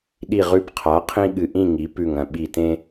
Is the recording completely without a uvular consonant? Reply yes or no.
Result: no